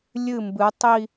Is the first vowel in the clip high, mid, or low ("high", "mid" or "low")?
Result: high